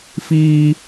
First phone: f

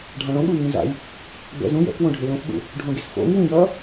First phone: ɖʱ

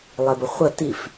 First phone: lˠ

